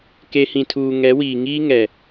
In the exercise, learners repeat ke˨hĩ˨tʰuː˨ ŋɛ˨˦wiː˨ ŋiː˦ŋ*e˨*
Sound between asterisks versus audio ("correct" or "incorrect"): incorrect